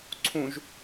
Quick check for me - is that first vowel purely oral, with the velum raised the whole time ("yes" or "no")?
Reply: no